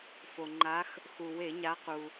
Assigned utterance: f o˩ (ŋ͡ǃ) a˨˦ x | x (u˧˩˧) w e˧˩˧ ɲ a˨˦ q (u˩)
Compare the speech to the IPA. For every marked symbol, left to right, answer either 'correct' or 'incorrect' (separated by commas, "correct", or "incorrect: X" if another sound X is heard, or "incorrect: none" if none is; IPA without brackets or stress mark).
correct, incorrect: u˩, correct